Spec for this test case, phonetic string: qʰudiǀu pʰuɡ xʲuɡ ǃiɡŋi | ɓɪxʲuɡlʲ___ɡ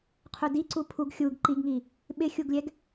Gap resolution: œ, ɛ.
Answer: ɛ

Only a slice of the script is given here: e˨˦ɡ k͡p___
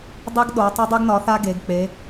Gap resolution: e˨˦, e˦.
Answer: e˨˦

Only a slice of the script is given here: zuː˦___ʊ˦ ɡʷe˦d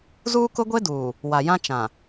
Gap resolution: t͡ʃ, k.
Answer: k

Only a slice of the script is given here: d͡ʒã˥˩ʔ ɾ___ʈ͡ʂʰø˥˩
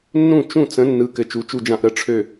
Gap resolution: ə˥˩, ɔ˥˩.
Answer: ə˥˩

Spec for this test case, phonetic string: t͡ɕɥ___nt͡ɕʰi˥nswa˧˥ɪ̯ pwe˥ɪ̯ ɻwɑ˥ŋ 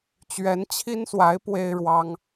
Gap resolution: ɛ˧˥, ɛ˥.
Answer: ɛ˧˥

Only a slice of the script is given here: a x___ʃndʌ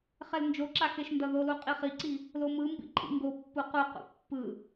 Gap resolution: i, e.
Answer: e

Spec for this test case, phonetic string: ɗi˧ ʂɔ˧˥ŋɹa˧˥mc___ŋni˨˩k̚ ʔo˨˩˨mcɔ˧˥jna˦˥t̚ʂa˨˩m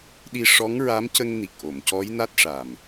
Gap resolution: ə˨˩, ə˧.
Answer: ə˧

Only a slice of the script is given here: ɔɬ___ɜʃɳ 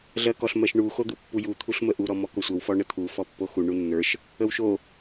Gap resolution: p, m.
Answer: m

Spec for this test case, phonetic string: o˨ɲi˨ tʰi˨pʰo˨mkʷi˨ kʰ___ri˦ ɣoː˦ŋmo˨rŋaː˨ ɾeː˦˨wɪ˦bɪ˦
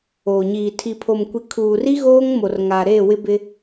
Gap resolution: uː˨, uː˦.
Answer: uː˨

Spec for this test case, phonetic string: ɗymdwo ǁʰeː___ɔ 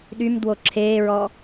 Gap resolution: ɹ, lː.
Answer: ɹ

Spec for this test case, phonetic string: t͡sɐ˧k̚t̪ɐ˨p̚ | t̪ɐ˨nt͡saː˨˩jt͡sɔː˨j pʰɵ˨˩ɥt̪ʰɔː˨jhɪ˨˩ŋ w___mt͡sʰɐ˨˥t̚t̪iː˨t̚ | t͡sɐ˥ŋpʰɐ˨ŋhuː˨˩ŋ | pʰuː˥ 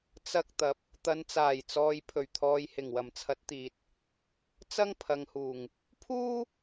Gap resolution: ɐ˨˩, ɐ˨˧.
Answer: ɐ˨˩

